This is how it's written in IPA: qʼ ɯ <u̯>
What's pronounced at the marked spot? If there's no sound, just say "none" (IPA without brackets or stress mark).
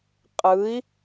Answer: i̯